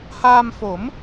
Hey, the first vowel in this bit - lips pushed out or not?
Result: no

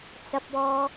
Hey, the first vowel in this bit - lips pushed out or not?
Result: no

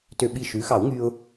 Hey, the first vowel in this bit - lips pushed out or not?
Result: yes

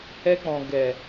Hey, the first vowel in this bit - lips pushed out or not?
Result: no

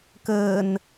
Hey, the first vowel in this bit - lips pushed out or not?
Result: no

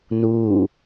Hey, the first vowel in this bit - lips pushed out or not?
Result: yes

